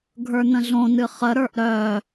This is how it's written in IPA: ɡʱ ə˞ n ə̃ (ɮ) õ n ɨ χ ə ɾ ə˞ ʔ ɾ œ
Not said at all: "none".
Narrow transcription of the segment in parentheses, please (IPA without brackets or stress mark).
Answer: ɮ